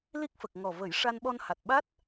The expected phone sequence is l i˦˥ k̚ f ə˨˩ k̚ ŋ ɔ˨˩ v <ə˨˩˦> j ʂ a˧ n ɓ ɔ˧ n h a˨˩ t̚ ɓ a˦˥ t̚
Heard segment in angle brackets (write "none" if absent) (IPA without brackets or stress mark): ə˨˩˦